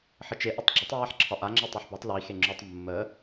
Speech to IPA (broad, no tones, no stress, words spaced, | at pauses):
ħət͡ʃe ʔɪtˤɡ͡ǁətˤ ɹaħǁʰɒʔa ŋ͡ǁɪtˤuħbɒtˤ li xeŋ͡ǁutˤ mːə